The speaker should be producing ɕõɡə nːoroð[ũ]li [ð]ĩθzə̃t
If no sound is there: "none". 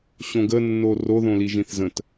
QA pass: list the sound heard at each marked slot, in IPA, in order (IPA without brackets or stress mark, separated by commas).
õ, ʒ